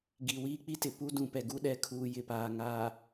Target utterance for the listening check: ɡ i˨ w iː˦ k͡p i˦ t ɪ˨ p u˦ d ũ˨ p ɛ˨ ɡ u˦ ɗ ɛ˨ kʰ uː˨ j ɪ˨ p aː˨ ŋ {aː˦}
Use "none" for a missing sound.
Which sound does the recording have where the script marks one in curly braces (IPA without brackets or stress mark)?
aː˨